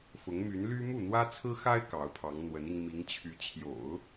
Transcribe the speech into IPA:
f ʊ˧˥ ŋ m y˧˥ n l y˥ m u˥˩ n̪ w ä˥ t͡sʰ ɹ̩˥ x a˥ ɪ̯ k ɑ˧˥ ʊ̯ pʰ ɑ˧˥ ŋ n̪ w ə˧˥ n i˧ ŋ m i˧˥ ŋ t͡ɕʰ y˧˥ t͡ɕʰ j o̰˨˩˦ ʊ̯

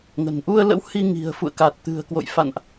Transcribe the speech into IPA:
ŋ ə̤˨˩ n ʔ u˧ ə̯ l ə̰˧˥ w h i˧ ŋ i̤˨˩ ə̯ f ṵ˧˨ ə̯ k a˨˩ t̚ t̪ ɨ̤˨˩ ə̯ k w o̰˧˨ j f a̰˧˨ n ʔ

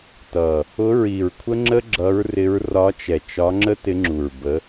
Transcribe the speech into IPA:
t ʌ˨˩ | ʊ˧˥ ɹ i˨˩ ɹ kʷʰ ə˥ ŋ͡ǁ ə˥ ɡ͡ǁ ʌ˧˥ ɹ r ɪ˧˥ ɹ r ɒ˧˥ t͡ʃ ɛ˨˩ t͡ʃ ɒ˧˥ ŋ͡ǁ ə˥ t ɪ˧˥ ŋ͡ǁ u˨˩ ɹ b ə˧˥

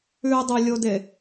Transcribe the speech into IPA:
ʉ dˤ ɨ lʲ o d e

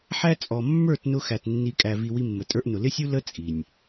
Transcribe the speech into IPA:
ħ æ˦ t͡sʼ ɔ˨ mː ə˞˦˨ t n ʊ˧ x æ˨ t nː i˧ kʼ æ˨ v i˨ w i˧ mː ə˨ tʼ ə˞˧ ʔ n ʊ˨ l ɪ˦ sʲ u˦ l ə˦ t͡sʼ i˨ nʲ

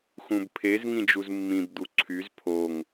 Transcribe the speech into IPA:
x ũ b pʰ e z ŋ ĩ d͡ʒ u z mː ĩ b d̪ u ǀʰ y z pʰ o ŋ

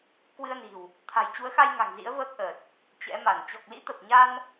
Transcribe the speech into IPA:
k w ɨ˧ ə̯ n i̤˨˩ w | t̪ʰ a̤˨˩ j t͡ɕ u˨˦ ə̯ x a˧ j ŋ a̤˨˩ ŋ z ḭ˧˥ ə̯ v əː˦˥ k̚ ʔ əː˨˩ t̚ | t͡ɕ ɛ̰˧˥ m a˧˩ n t͡ɕ ɔ˨˩ k̚ l ḭ˧˥ t̪ ə˨˩ p̚ ɲ a˧ n

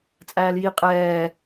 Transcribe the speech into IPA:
t͡sʼ æː l j i qʼ ɛː

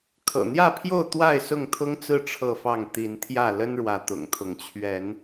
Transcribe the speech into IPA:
kʰ ɤ̰˨˩ n̪ j ä˥˨ pʰ j o˥˨ ʊ̯ t̪ w a˥˨ ɪ̯ s ʊ˥˨ ŋ t̪ʰ ʊ˦ ŋ t͡s ɹ̩˥˨ ʈ͡ʂʰ ɤ˥˨ f ɑ˥˨ ŋ t̪ i˨˦ n t̪ʰ j ä˥˨ l ə˦ n ɻ w ä˨˦ t̪ ʊ̰˨˩ ŋ t̪ʰ ʊ˨˦ ŋ t͡ɕʰ ɥ ɛ˨˦ n

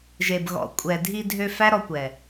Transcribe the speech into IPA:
ʒ e˨ b ɣ ɔ̰˨ kʷʼ ɛ˨ dʱ i˧ dʱ ø˧ f æ˦ ɾ ɔ˧ kʷ ɛ˨

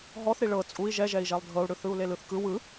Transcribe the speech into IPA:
ɦ ɔ θ ɾ i ɭ ɤ t͡sʼ u i̯ ʒ ɛ ʒ ɛ i̯ ʒ ɛ lˠ dʱ ɤ u̯ ɽ ɯ θ ɯ u̯ l e l ɯ θ k ɯ w ɯ

